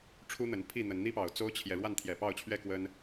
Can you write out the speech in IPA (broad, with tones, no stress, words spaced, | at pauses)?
ʈ͡ʂʰu˦n̪ə˨˦npʰi˥˨n̪ə˨˦n n̪i˦pɑ˨˩ʊ̯ t͡so˦ʊ̯t͡ɕʰjɛ˨ ɻwa˥˨nt̪ʰjɛ˨˩pɑ˥˨ʊ̯t͡ɕʰɥɛ˥˨ kwə˦n